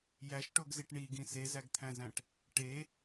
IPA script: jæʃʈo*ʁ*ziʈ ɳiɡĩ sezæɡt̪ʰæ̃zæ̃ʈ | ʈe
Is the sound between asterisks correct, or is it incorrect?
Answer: incorrect